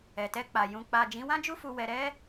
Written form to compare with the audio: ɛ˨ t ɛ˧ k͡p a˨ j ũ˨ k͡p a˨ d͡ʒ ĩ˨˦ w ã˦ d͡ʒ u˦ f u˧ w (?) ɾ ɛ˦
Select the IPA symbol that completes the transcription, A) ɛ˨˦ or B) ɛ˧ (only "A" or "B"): B